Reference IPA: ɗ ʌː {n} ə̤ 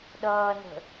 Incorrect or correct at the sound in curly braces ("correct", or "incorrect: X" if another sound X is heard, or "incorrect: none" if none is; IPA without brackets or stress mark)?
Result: correct